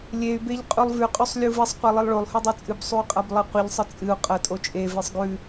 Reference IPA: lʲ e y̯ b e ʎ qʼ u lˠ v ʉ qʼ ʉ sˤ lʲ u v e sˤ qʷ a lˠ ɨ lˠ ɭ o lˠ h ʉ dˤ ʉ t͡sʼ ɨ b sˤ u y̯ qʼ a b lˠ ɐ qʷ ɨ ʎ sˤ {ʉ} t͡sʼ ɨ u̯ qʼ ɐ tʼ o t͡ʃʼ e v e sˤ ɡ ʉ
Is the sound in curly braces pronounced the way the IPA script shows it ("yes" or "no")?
no